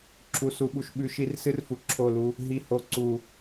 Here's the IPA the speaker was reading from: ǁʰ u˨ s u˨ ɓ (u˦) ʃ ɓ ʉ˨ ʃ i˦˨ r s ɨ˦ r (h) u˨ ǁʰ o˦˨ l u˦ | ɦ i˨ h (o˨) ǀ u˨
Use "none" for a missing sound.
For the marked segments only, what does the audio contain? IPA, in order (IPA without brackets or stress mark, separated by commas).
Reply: u˨, f, o˨